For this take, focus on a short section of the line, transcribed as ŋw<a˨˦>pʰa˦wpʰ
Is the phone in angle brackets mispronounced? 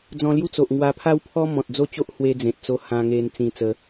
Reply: yes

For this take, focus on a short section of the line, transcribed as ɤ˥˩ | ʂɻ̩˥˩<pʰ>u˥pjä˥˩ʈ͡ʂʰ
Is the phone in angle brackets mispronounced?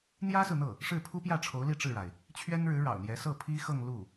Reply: no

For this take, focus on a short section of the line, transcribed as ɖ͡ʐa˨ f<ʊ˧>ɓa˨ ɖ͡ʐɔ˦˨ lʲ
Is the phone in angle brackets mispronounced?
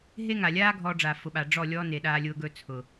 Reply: yes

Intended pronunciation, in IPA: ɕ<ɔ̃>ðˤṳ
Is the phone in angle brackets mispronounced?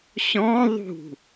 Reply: no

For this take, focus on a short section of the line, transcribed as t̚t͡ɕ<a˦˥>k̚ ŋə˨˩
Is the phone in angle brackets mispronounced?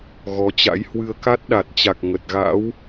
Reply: yes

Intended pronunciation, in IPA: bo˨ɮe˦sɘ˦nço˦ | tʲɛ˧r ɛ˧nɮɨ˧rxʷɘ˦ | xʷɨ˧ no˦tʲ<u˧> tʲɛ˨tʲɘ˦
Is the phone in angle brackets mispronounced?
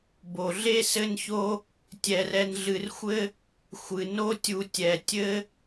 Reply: no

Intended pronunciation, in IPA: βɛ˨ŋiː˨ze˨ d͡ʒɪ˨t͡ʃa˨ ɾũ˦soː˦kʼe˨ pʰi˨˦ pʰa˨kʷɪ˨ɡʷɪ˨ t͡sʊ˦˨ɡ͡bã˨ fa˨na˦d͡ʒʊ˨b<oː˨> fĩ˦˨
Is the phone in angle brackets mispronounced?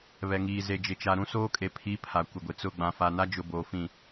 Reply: no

